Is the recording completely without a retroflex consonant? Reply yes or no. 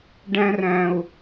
no